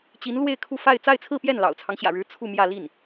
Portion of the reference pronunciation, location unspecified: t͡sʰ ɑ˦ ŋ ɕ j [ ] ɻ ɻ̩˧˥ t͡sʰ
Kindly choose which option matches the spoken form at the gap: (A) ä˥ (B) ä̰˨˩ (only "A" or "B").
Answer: B